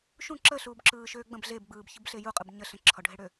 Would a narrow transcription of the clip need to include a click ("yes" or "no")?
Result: yes